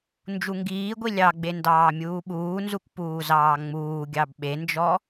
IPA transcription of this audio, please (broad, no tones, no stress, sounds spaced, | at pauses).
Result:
n d͡ʒ u ŋ ɡ iː ɡʷ i lʲ ɑ ɡ͡b e n d ɑː mʲ uː ɓ uː n z u k p uː z ɑː ŋ͡m uː ɡʲ ɑ b ɓ e n d͡ʒ ɔ